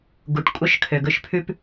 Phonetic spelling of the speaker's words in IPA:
ɡ u˨˦ ʈ kʷʼ œ˦ ʃ kʰ ø˨ ɡ ɵ˦ ʃ pʰ ʉ˦ p

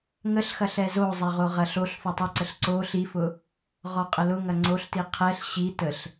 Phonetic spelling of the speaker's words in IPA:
ŋ ə ɬ x ɐ ɬ ɛ z o zˤ ɛ ʁ o ʁ ɐ ɬ o ɬ f o tˤ ə ǀ ə ɬ ǀ o ɬ i f ʊ | ʁ ɔ qʼ ə l ʊ ŋ ɐ ŋ͡ǀ o ɬ t i qʰ ɛ ɬ ɕ i t ə ɬ

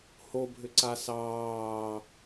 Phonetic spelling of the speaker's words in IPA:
h o bʱ ʏ ǀ a s ɑː

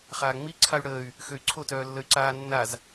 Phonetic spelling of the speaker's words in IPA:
χ aː ŋ͡m i ǀʰ a y̯ ɽ əː y̯ | x ø y̯ ǀʰ o t œː lː ə y̯ ǀ aː nː a z

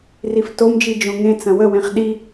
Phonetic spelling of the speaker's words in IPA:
r i f t o m d͡ʒ i d͡ʒ õ ŋ ẽ t͡s ɐ̃ w ə w ẽ χ ɗ i

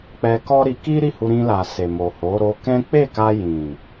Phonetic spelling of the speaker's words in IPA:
k͡p ɛ˧ k ɔ˦ ɾ i˧ k i˦ ɾ i˦˨ h u˧ ɾ ĩ˧ l a˨ s e˨ m o˨ h o˨˦ ɾ o˧ k ɛ̃˦ k͡p e˦˨ k a˧ j ĩ˨

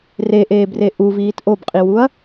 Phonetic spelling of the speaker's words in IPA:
r e ʔ eː b r e ʔ u v iː t ʔ o b qʼ i w u ɐ̯

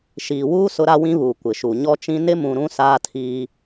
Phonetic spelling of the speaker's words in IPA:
ʃ iː˨ w uː˦ s ʊ˦ ɾ a˦ w ĩ˦ β uː˨ kʷ ɪ˨ ʃ u˨ ɲ ɔ˦ t͡ʃ ĩ˦ n ɪ˦ m ũ˨ ɾ ũ˦ s aː˦ tʰ iː˦

